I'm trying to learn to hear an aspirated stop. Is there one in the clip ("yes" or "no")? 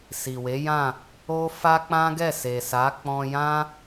no